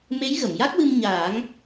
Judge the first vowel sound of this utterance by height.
mid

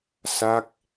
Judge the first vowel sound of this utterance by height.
low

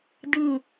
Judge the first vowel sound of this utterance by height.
high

